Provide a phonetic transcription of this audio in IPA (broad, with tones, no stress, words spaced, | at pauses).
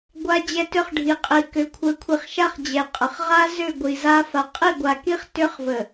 ɡʷa˦ d͡ʑɛ˦tʏ˦χɖʱi˨ qʼi˨ kʏ˨kʷʰə˨˦ kʷʰi˨χʃa˦χ d͡ʑɛ˨qʼə˨χ ʁa˦ zʏ˦˨ ɡʷi˨za˦ fa˨qʼi˦˨ɡʷa˨ki˦χ tʏ˦χvə˨